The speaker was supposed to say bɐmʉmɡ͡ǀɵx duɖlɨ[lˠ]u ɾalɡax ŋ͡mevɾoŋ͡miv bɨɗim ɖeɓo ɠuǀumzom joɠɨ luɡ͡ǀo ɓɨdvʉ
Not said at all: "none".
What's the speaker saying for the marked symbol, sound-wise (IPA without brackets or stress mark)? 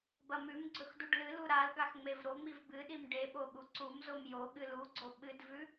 l